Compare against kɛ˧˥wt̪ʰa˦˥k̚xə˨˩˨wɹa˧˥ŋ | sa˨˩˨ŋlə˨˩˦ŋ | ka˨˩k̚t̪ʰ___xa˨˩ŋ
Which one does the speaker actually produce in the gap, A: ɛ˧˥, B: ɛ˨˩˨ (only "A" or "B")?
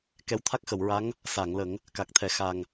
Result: B